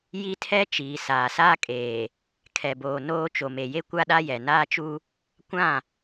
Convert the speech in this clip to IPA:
j i˦ tʰ ɛ˦ t͡ʃ iː˨ s aː˨ s aː˦ kʼ eː˨ | kʰ ɛ˨ b oː˨ n oː˦ t͡ʃ o˨ m e˨ j e˦ kʷ a˦ ɗ a˦ j ɛ˨ n aː˦ t͡ʃ u˦ | kʷ ã˦˨

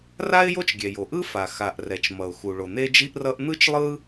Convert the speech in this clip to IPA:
r a˥ ɪ̯ j o˥ t͡ʃ ɡʲ ɛ˩ j o˩ ʔ ɯ˥ f a˩ x a˩ ʔ r ɛ˩ t͡ʃ m ʌ˩ ʊ̯ x u˩ ɭ o˩ n̪ e˥ d͡ʒ i˥ ʔ r ʌ˥ ʔ n̪ ɯ˥ t͡ʃ lˠ ɯ˥

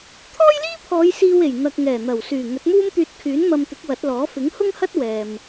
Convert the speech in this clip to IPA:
t̪ʰ ɔː˥ j l iː˥ pʰ ɔː˨˧ j s iː˧ w e˨˩ j n̪ ɐ˨ k̚ ŋ ɛː˨˩ n̪ ɐ˨˩ w s yː˨˩ ŋ ɵ˨˥ t̚ m uː˥ m t̪ yː˧ t̚ kʰ yː˨˥ n m ɐ˧ m t̪ ɪ˨˥ k̚ w ɐ˨˥ t̚ l ɔː˨˥ f ɪ˨˥ ŋ h ʊ˥ ŋ h ɐ˥ t̚ w ɛː˨ m

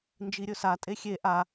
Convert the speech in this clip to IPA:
n d͡ʒ i ɾʲ ɵ s a tʼ e xʲ e ʔ a

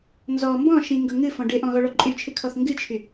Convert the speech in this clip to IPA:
n z ɔ m b ɔ̃ ʃ ĩ ŋ ɡ ɤ ŋ ɨ f ɔ̃ ɖ ɪ ʔ ɔ̃ ɣ ɔ ɭ ɔ ǃʼ y t͡ʃʰ ɨ kʰ ɔ θ ŋ ɡ ɨ t͡ʃʰ y

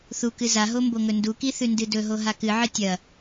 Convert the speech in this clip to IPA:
θ u k ɨ z a ɦ o m b o ŋ ɵ n d u k i θ ʉ n d ɨ d ɵ ɦ o ɦ a k ɨ ʕ ɨ tʲ ɐ

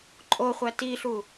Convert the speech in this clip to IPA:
ǃʼ o χʷ æ t i ɬ u

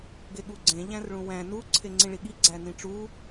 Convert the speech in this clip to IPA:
ɡ e ɠ u ɡ͡ǀ ẽ ʎ æ̃ r ɭ ũ w æ̃ n u ǀʰ e ŋ͡ǀ ĩ ɭ i ɠ i ɡ͡ǀ æ n ĩ ʈ͡ʂ u

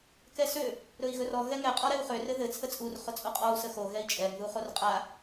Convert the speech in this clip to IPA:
k ɛ s ø | ɾ ɵ i̯ ɣ ɵ r ɔ ɣ ɛ ŋ ɛ qʼ ɔ ɾ ɛ u̯ χ ø r ɘ ð ɘ t͡sʰ ə t͡sʼ u r χ ʊ t͡sʼ o qʼ ɔ u̯ s ə x o ɣ ɛ i̯ t͡ʃʼ ɛ ŋ ð u χ o r qʼ a

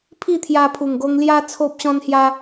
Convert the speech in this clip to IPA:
pʰ i˥˧ t̪ʰ j a˧ pʰ u˨˩ ŋ ɡ o˧ ŋ l j a˦ t͡sʰ o˦ p̚ ɕ ɔ̃˦ n h j a˦

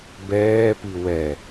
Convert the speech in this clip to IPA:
b ɛː p i w ɛ

